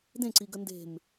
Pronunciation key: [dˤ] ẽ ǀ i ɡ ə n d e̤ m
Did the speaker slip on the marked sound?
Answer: yes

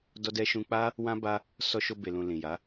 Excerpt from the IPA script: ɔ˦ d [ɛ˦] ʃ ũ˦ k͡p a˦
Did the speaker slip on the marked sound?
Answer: no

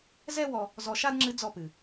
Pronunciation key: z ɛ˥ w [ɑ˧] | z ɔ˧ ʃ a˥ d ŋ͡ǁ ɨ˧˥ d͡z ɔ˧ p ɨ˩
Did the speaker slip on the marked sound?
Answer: yes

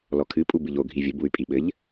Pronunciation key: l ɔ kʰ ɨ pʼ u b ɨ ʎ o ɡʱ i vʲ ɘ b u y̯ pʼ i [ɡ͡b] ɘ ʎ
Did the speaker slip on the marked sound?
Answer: yes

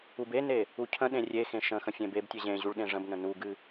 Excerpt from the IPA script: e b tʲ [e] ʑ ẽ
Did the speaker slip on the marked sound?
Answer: no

